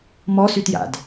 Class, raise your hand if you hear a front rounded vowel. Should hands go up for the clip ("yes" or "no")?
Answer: yes